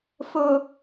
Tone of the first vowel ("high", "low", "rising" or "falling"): low